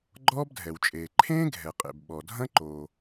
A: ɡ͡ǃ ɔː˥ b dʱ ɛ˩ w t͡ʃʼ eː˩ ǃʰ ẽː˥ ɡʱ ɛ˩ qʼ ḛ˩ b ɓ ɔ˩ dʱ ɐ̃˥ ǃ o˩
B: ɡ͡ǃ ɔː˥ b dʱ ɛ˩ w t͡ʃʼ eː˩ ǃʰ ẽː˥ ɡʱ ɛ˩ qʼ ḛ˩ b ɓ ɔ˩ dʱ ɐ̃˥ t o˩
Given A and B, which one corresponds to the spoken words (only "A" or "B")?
A